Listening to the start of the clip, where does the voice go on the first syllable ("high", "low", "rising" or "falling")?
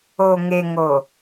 low